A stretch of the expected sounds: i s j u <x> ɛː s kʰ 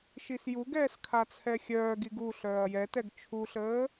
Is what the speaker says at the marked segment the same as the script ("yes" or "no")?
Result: no